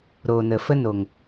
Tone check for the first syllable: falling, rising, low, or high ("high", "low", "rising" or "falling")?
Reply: low